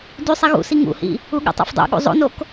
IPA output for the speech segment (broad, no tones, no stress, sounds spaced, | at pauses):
d y sˤ i ɣ ṵ s i ŋ ṵ h ḭ | u ɠ o̰ tˤ a̰ f dˤ o̰ ɠ ṵ zˤ o̰ n o k